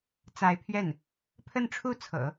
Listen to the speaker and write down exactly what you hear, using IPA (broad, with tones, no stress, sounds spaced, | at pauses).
t͡s a˧˥ ɪ̯ pʰ ɥ ɛ˥˩ n | pʰ ə˥˧ n ʈ͡ʂʰ u˥˩ t͡sʰ ɤ̰˨˩˦